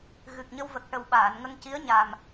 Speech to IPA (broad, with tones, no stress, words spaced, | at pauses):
ɣɨ˨˩k̚ɲə˧w və˨˩k̚ʈə˨˩wɓaː˨˩˨n ŋə˧ŋci˧˥ə̯ɲa˨˩m